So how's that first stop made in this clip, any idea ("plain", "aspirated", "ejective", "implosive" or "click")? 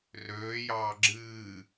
click